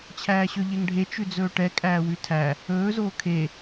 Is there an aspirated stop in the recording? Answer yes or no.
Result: yes